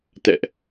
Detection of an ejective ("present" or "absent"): absent